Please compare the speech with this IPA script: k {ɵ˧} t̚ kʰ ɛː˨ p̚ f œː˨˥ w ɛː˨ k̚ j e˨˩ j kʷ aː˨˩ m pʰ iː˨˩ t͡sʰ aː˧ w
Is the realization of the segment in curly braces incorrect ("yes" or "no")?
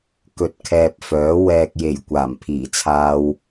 yes